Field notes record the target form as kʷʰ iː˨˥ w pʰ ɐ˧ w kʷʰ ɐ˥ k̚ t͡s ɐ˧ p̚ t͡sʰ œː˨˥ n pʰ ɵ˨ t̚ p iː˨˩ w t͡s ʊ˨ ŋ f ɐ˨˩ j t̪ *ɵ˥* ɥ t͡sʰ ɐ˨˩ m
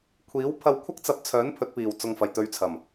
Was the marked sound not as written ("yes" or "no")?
yes